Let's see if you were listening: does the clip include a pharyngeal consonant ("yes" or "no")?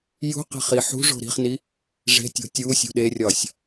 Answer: yes